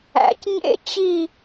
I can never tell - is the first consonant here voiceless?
yes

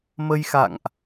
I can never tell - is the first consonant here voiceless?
no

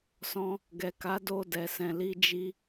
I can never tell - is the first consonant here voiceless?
yes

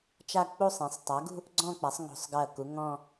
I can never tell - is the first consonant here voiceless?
yes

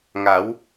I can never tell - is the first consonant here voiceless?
no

